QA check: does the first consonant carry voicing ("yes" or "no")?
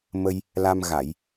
yes